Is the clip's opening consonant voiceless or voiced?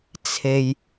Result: voiceless